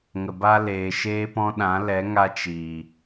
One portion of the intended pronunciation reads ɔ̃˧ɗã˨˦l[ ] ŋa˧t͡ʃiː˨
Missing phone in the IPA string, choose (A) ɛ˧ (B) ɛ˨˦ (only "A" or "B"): B